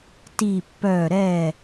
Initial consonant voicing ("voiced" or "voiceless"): voiceless